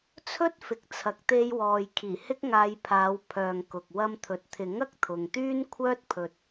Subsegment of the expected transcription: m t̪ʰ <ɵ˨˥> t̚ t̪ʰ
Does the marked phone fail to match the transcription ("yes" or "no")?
yes